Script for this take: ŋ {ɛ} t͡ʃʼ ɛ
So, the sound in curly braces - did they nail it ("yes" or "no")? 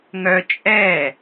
no